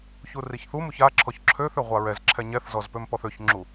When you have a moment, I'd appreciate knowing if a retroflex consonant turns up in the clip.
no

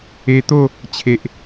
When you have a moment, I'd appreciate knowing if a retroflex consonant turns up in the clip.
no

